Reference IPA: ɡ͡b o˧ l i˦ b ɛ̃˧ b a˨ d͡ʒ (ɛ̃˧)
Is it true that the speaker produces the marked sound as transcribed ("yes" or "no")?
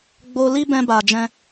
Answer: yes